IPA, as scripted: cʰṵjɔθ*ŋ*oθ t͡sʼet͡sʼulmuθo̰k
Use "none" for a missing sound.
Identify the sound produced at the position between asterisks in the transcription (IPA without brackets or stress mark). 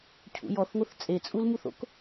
ŋ